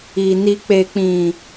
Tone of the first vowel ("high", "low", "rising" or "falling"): low